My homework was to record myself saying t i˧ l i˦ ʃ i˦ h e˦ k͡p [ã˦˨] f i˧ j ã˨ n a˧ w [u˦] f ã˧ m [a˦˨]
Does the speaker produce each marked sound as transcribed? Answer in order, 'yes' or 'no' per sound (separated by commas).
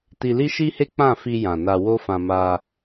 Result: yes, no, no